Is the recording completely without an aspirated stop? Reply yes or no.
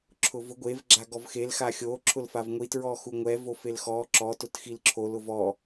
no